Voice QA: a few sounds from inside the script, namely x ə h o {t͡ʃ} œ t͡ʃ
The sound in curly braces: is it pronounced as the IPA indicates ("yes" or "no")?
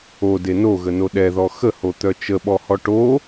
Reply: no